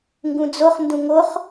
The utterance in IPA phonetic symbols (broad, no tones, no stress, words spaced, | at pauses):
ŋɡũd͡zoχ ndũŋoχ